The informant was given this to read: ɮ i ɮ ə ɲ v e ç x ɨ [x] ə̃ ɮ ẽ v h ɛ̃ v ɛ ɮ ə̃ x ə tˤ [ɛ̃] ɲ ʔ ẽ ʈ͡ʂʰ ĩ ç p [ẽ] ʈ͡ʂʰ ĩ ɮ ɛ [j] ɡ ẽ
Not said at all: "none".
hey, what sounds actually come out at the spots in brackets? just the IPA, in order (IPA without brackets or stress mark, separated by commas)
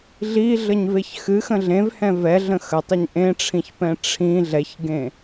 x, ɛ, ɛ̃, ç